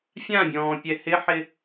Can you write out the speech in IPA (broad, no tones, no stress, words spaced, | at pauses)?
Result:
fʲãbʲɔ̃ːpʲɛ hɪħɪ